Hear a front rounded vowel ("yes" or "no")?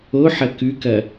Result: no